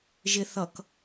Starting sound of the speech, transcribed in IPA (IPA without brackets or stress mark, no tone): ʒ